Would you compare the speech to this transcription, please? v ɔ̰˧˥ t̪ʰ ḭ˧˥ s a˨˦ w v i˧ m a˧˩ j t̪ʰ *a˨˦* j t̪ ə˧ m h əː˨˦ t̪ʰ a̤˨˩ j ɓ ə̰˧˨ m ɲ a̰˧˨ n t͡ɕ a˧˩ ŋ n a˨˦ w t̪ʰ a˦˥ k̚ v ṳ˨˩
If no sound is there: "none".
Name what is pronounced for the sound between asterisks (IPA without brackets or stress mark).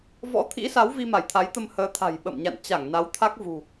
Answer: a˨˦